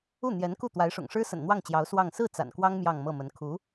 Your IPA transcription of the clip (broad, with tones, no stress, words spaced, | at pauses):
u˥˩n̪jɛ˧˥nku˥˩ t̪wa˧˥ɪ̯ʂʊ̰˨˩ŋʂɻ̩˥sə̰˨˩n n̪wɑ˥˩ŋt͡ɕjɑ˧˥ʊ̯ swɑ˥˧ŋ sɹ̩˥˩ t͡sa̰˨˩nkwɑ˥ŋ mjɑ˥˧ŋmɤ˥˩mə˧˥n kʰu˧˥